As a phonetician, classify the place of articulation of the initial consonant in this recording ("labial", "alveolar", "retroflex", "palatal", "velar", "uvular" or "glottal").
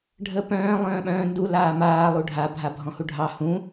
retroflex